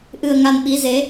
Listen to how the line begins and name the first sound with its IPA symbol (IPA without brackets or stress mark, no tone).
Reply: ʔ